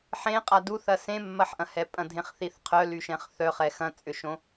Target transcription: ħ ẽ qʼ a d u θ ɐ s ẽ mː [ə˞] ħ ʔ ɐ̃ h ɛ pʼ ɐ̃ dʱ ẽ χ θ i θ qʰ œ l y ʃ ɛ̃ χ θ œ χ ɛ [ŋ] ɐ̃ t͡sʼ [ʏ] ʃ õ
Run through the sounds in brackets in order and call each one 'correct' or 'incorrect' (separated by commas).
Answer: incorrect, incorrect, correct